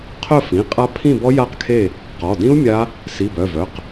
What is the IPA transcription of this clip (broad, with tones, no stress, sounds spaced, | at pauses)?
qʰ œ˥˨ f ĩ˩˧˩ qʼ a˦˥ pʰ ĩ˥˨ b ɔ˦˥ j a˥˨ q kʰ e˥˨ | q ɔ˩˧˩ d ĩ˦˥ u̯ mʲ a˦˥ | s i˩˧˩ b œ˩˧˩ v œ˩˧˩ q